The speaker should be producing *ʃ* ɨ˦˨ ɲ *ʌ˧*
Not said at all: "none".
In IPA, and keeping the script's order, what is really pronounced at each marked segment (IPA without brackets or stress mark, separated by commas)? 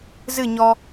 z, ɔ˧